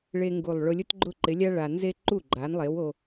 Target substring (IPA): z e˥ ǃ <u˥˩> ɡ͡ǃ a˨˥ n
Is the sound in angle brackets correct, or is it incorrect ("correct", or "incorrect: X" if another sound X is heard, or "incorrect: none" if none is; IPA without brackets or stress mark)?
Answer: correct